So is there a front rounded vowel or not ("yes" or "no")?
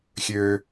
yes